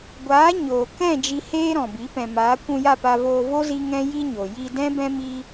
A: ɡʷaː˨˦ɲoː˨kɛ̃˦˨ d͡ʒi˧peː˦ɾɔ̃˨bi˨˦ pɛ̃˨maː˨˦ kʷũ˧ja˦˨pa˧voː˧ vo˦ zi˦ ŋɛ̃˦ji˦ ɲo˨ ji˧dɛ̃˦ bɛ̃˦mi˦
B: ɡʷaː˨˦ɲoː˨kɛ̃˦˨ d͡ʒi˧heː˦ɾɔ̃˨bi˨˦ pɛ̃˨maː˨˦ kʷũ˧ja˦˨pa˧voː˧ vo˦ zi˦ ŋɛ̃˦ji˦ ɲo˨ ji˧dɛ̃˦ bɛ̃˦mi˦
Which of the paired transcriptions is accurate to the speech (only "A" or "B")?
B